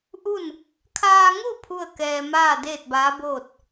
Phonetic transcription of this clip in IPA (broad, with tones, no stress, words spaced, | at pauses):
ʔu˥˨n | kʰaː˧ŋu˥˨ pʰu˥˨ə̯kɛː˧ maː˥˨deː˥˨t̚baː˧˥boː˥˨t̚